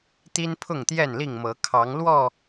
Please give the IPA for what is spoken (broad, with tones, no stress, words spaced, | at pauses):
t̪i˦npʰʊ˥˨ŋt̪jɛ˥˨nli˥˨ŋ mɤ˨˦kʰɑ˨˦ŋlwɔ˥˨